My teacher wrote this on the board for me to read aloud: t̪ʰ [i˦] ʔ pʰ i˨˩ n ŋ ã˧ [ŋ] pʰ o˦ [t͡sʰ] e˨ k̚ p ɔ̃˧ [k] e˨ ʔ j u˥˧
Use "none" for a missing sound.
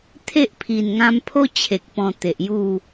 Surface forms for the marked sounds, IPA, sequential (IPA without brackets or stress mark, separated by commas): e˦, m, t͡ɕʰ, t̪